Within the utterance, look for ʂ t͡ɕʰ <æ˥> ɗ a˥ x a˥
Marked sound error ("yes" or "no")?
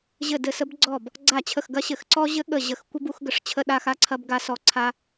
yes